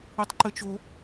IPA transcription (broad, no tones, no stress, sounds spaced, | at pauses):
i tˤ ǃ ɘ t͡ʃ o